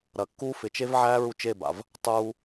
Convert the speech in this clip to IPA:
ɾ ɐ˨ kː uː˦ f ɪ˨ t͡ʃ e˦ v ʕ æː˦ ɹ u˦ t͡ʃ e˦˨ b a̰˨ v | tˤ uː˦

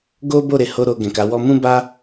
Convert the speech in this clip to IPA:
ɡ o˦ b o˦˨ ɾ e˨˦ h o˦ ɾ o˧ ɡ ɛ̃˨ k a˨˦ w ɔ˧ m ũ˦ b a˦

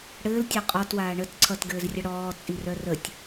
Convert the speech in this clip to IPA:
ɽ ɘː l tʲ œ qʼ ɔ t w aː ɳ ə t ǀʰ ʌ t ɡ ɘː z rʲ ə ɽ ɔː t͡sʼ i r œ r ə tʲ

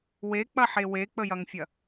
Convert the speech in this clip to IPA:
w e k͡p ɐ ħ e w e k͡p ə j ɐ ŋ fʲ ɐ

